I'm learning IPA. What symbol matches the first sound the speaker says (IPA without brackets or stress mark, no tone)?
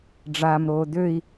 ɖ͡ʐ